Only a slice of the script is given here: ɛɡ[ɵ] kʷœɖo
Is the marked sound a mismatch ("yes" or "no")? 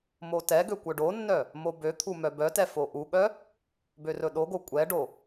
yes